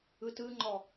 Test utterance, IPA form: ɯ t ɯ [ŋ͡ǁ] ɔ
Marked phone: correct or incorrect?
incorrect